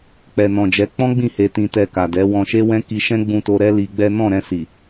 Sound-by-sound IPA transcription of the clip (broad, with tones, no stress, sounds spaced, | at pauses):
k͡p ɛ˨ n ɔ̃˨ d͡ʒ ɛ˨˦ k͡p ɔ̃˦ ɡ͡b ĩ˦˨ h e˧ t ĩ˧ t ɛ˧ k a˨ d ɛ˨˦ w ɔ̃˧ ʃ e˦ w ɛ̃˦ k i˧ ʃ ɛ̃˦ ɡ͡b ũ˧ t o˧ ɾ ɛ˦ l i˧ ɡ͡b ɛ˦ n ɔ̃˦˨ ɾ ɛ̃˧ s i˨